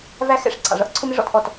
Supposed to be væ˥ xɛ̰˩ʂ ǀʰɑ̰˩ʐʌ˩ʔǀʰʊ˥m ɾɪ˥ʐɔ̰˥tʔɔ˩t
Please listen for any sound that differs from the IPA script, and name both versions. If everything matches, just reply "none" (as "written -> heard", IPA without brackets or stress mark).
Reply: ɛ̰˩ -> ɛ̰˥